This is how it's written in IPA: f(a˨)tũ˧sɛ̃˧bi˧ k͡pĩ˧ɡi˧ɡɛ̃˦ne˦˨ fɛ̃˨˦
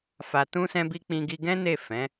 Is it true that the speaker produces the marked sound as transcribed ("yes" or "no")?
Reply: yes